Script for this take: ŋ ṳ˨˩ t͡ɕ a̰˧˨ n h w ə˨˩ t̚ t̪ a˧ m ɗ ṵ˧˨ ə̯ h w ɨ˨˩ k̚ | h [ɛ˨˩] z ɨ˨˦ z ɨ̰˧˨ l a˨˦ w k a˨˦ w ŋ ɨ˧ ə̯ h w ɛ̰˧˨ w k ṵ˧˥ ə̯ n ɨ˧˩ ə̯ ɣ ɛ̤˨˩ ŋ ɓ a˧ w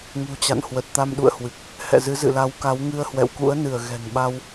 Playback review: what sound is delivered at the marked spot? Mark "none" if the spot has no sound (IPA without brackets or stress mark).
ɛ̰˧˨